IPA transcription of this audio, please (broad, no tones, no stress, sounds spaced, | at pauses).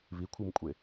β i kʷʰ ɨ m kʷʼ e